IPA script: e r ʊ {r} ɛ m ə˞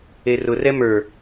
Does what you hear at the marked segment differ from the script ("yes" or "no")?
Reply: no